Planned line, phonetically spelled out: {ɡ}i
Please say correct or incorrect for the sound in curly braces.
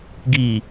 correct